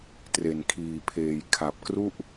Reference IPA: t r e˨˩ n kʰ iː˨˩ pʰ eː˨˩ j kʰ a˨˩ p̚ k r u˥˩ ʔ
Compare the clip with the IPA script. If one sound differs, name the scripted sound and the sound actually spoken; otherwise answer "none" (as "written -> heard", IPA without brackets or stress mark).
none